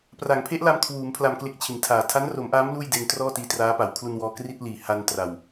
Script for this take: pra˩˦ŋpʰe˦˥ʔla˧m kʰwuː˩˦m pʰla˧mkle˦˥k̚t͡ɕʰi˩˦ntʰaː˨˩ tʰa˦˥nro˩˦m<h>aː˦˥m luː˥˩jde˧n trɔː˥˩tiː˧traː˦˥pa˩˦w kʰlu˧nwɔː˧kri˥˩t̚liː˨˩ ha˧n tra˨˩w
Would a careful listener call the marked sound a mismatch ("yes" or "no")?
yes